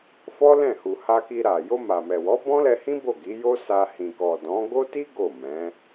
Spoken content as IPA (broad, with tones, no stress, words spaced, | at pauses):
fɔ˦lɛ̃˦˨hu˨ ha˧ki˧ɾa˨ jo˧ma˨mɛ˨wɔ˨˦ bɔ̃˦lɛ˧hĩ˦ bo˦˨ɡi˨˦jo˦sa˧ hĩ˨kɔ˨ dɔ̃˨˦ ɡo˦ti˦ ɡo˦˨mɛ̃˨˦